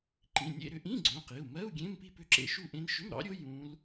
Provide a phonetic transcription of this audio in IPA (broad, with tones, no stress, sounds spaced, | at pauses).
ǃ ĩ˩˧˩ nʲ ḛ˥˧ ɾ ʏ˦˥ ʔ ĩ˧˥˧ ɡ͡ǀ õ˩˧˩ q i˩˧˩ u̯ m ɜ˧˥˧ u̯ ɡʲ ẽ˧˥˧ m p i˥˧ p ʏ˦˥ ǁ ḛ˦˥ ʃ u˥˧ ʔ ẽ˦˥ n ʃ ʏ˧˥˧ m ɾ ɑ̰˦˥ ɾʲ o˦˥ j ũ˦˥ l